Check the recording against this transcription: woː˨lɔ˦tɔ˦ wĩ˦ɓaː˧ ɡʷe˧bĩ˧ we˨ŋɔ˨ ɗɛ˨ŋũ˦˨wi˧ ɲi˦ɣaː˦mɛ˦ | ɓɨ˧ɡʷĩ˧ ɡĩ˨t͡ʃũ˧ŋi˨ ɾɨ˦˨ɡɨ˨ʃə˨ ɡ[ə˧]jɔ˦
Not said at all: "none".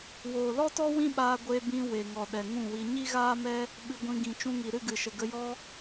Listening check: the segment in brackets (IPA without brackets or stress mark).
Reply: ə˧